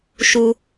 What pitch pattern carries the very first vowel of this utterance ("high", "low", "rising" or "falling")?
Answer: low